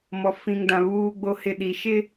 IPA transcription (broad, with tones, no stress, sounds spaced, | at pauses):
m ɔ˨ f ĩ˨ ŋ d ã˨ β uː˨ ɡ͡b o˨ h ɪ˨ ɗ i˨ ʃ ɪ˦